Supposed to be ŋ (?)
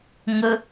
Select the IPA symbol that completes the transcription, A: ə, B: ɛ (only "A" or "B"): A